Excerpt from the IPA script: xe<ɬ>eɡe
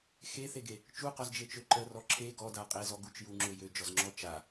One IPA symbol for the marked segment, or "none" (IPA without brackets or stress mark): θ